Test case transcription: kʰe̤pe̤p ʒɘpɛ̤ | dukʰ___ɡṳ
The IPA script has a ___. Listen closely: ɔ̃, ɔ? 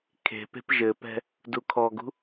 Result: ɔ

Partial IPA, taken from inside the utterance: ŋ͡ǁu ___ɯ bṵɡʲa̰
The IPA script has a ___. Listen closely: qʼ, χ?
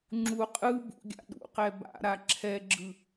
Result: qʼ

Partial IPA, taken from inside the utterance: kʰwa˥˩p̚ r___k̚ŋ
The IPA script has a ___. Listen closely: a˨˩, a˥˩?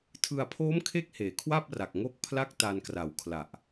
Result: a˨˩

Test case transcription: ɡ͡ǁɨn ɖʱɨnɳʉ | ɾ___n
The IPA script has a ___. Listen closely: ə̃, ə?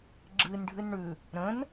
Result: ə̃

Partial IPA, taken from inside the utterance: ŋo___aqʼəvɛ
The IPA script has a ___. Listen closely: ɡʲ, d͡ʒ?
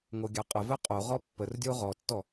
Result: ɡʲ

